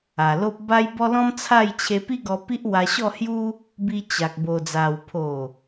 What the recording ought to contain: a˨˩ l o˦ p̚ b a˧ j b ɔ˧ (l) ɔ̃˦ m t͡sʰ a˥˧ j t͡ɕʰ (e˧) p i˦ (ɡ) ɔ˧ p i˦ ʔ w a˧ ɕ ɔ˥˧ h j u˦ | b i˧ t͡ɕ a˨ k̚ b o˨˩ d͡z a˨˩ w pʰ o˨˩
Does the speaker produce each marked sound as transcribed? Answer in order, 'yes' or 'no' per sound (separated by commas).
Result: yes, yes, yes